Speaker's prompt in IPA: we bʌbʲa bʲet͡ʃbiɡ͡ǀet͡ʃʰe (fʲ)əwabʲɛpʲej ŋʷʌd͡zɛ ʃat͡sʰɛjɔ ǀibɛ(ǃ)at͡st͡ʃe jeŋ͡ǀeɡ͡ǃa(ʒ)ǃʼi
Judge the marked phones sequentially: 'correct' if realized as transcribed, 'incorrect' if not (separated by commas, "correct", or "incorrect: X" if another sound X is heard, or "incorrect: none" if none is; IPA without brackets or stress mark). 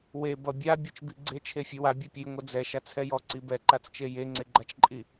correct, correct, incorrect: t͡ʃ